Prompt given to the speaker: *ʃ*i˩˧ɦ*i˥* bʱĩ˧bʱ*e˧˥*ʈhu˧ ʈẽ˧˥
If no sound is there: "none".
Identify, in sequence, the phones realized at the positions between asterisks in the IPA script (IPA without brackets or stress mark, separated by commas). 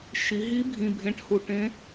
ʃ, i˧˥, ẽ˧˥